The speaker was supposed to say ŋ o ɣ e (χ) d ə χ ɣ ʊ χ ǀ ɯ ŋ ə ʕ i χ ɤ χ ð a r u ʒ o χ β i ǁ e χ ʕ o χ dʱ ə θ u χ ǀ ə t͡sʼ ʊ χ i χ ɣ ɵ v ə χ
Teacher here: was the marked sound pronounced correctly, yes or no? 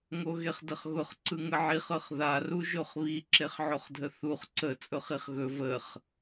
yes